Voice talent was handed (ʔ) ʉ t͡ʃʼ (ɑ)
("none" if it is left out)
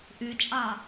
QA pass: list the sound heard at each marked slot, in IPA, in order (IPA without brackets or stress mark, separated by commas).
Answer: ʔ, ɑ